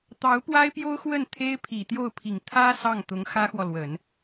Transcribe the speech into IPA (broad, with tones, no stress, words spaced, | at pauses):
t̪ɑ˧˥ʊ̯pwa˥ɪ̯pjo˥ʊ̯ xwə˥˩nt̪ʰe˥ɪ̯pʰi˨˩ t̪jo˥˩ʊ̯pʰi˨˩ŋ t̪ʰä˥ sɑ˥˩ŋt̪ʊ˧˥ŋ xä˥xwɔ˨lwə˨˩˦n